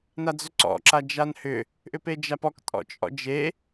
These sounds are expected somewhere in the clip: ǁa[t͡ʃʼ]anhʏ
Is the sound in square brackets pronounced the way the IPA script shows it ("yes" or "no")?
no